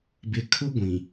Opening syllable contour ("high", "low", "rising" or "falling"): low